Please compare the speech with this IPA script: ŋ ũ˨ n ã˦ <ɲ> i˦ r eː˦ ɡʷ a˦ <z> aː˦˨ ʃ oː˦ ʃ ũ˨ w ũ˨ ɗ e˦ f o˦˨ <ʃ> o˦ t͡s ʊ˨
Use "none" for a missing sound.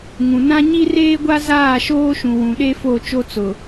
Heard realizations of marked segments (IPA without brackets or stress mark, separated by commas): ɲ, z, t͡ʃ